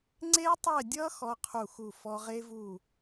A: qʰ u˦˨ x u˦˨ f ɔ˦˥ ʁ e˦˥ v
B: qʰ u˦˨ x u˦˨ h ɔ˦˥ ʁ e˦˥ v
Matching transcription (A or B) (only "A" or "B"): A